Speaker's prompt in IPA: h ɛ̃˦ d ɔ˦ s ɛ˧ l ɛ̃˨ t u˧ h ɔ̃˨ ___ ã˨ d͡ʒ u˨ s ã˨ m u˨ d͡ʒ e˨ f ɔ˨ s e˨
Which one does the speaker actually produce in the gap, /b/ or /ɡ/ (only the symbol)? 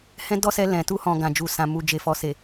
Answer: ɡ